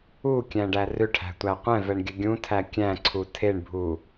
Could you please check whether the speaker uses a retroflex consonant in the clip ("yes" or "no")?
yes